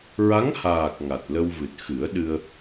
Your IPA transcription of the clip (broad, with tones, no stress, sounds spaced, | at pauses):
ɹ a˧˥ ŋ h aː˨˩ k̚ ŋ a˨˩ t̚ l ə˧ w v ɨ˨˩ t̚ x ɨ˨˩˦ ə̯ ɗ ɨ˧ ə̯